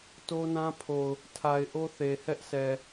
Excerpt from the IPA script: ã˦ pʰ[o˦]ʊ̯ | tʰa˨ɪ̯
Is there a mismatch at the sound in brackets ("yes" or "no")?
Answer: yes